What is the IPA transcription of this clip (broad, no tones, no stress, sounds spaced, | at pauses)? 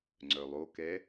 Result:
ŋ͡ǀ œ lˠ o k ɛ